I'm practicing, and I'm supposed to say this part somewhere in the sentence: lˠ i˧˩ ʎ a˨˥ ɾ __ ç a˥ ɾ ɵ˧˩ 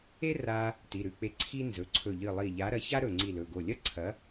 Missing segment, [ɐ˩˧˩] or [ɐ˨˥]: ɐ˨˥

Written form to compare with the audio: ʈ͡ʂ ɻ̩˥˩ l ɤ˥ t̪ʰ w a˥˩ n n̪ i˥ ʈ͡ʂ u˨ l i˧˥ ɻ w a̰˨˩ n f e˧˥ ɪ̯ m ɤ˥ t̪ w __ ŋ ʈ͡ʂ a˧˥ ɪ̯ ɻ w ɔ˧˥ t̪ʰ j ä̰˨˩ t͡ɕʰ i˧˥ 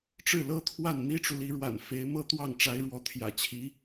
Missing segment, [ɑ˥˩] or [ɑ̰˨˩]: ɑ˥˩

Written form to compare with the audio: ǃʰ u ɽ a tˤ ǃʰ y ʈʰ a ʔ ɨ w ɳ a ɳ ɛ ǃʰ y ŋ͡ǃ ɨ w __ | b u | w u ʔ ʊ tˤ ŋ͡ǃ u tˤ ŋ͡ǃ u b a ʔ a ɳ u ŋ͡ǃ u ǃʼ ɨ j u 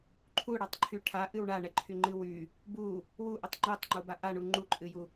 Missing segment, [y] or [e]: y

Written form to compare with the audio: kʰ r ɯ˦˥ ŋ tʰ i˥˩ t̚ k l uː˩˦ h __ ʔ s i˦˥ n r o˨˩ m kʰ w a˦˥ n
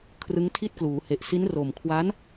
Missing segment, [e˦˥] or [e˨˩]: e˨˩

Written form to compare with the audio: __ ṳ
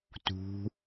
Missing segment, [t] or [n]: t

